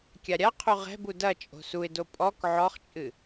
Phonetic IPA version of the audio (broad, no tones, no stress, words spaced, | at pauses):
kʲaɾʲaqʰu ʁɛ̤bu dɐt͡ʃʼo̤ suɪ̯do pʼɔk ʕɔχt͡ʃʼɨ